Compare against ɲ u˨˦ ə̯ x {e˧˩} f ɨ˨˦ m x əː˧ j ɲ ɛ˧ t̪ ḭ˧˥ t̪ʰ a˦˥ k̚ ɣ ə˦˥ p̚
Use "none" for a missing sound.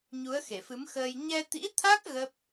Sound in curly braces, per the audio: e˧˩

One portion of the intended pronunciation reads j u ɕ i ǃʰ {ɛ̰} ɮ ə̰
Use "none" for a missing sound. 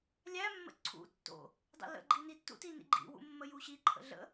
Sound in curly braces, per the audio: ə̰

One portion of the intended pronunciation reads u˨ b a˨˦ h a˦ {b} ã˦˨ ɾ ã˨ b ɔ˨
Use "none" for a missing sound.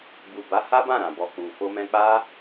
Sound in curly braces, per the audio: b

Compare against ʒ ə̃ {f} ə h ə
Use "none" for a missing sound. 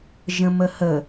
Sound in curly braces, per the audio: m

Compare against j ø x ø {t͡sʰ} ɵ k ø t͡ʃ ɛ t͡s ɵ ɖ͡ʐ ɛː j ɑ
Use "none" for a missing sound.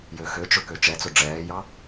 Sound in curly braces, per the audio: t͡ʃ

